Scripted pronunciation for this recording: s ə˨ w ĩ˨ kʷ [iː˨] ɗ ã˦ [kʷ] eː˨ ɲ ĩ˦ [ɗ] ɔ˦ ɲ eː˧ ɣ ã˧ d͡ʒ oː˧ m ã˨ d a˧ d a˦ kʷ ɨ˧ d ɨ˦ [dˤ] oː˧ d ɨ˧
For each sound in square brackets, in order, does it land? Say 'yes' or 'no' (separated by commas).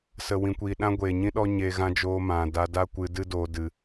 yes, no, yes, no